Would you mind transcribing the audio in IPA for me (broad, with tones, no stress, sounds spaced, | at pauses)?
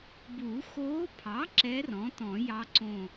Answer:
b u˨˩˦ x oː˧˥ pʰ ɑ˩˥ ǁ ɛ˧˥ r ɔ̃˩˥ t ɔ̃˨˩˦ j ɑ˧˥ ǀ õ˧˩